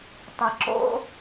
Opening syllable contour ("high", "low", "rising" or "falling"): low